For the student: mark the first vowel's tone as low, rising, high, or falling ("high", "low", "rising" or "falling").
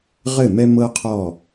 falling